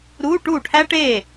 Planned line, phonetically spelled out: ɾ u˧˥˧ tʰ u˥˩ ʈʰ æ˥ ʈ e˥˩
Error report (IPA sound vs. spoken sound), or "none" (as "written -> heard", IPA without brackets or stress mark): tʰ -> ʈ